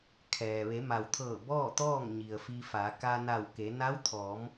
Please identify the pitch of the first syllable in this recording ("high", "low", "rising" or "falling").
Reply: low